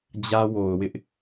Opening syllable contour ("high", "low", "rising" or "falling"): high